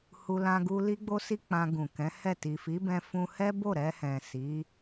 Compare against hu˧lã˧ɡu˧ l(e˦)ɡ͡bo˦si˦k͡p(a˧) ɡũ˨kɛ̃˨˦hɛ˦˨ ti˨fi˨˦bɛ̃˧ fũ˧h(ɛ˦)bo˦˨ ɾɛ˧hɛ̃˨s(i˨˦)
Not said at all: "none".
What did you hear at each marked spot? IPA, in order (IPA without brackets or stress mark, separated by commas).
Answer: i˦, ã˧, ɛ˦, i˨˦